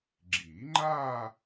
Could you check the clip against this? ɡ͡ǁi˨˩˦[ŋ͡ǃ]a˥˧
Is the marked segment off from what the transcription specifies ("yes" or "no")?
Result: no